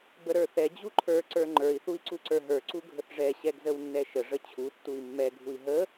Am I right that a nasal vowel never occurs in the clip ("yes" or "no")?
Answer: yes